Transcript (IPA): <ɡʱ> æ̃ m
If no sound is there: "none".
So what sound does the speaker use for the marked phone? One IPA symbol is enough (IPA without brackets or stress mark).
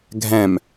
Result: ɡʱ